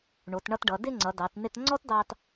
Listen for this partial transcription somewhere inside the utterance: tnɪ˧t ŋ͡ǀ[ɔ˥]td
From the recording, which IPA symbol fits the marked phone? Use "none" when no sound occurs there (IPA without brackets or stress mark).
ɔ˥